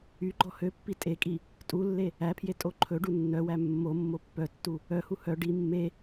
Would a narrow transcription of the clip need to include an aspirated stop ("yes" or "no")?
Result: yes